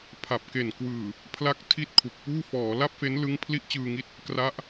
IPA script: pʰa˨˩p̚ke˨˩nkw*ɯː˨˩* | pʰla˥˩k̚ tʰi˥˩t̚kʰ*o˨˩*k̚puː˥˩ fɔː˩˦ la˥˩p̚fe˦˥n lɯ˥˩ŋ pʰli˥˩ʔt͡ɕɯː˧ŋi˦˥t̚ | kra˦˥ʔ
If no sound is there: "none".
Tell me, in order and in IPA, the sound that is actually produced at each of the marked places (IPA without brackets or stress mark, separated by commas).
ɯː˨˩, u˨˩